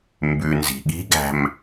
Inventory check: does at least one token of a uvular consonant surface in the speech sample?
no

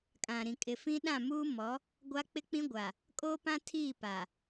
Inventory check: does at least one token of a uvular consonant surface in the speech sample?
no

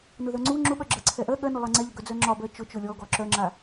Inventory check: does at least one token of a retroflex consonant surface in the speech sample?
no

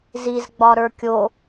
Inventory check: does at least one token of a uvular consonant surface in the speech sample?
no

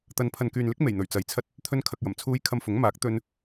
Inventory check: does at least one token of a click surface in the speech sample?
no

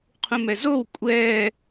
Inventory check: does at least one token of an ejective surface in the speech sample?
yes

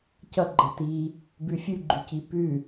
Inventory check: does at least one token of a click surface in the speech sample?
yes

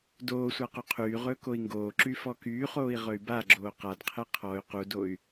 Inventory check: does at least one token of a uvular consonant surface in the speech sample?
yes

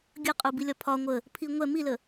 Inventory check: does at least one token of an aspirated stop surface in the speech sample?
yes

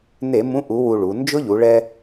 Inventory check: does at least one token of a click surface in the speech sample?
no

